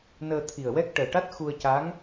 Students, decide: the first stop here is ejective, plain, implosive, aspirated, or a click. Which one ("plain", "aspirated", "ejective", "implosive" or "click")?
aspirated